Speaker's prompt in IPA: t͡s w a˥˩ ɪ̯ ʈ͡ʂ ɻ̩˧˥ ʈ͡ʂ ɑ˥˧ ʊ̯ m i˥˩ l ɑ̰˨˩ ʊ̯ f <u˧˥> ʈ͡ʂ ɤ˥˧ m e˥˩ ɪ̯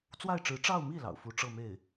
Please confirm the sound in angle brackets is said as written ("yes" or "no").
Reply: yes